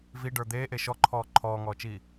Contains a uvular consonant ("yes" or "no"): no